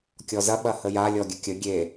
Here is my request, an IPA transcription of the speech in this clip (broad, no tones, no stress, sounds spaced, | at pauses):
kʲ ɔ z ɐ ɓ ɐ h ə j a lʲ ɔ ɡʲ ə kʲ ə ɡʲ e